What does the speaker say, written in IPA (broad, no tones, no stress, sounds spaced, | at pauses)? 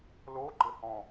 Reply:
l o ɡ͡ǃ ɘ h ɔ̃